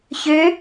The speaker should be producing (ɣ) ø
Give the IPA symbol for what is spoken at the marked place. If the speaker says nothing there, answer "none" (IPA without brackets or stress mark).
ç